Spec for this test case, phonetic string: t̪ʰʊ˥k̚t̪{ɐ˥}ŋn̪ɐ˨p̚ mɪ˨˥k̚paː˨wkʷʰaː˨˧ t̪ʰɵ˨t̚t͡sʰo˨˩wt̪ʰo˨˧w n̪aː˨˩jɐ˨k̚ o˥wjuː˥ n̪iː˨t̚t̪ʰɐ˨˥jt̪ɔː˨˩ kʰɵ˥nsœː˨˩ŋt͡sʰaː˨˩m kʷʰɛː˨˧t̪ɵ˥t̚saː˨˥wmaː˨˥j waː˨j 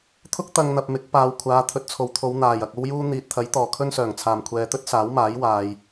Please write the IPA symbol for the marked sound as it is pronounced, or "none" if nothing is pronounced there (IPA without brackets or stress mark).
ɐ˧